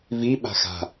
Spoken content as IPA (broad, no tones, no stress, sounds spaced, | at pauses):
v i ɓ a̤ x a̤